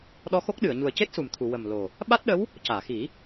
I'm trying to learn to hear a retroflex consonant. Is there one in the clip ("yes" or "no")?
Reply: no